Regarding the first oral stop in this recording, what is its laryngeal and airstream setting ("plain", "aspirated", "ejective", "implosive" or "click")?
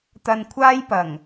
plain